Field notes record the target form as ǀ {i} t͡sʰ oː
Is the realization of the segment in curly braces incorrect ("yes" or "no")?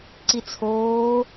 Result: no